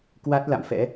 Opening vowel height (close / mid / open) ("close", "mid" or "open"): open